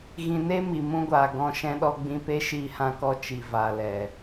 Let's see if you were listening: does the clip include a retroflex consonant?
no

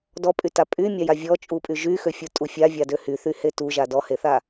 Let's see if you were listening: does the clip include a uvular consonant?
no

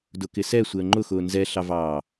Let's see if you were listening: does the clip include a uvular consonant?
no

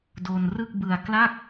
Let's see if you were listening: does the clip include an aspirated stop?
no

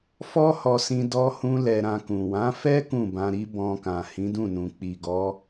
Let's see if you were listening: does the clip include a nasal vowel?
yes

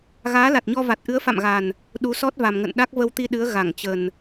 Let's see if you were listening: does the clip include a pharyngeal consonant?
no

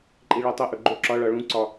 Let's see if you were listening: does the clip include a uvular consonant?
no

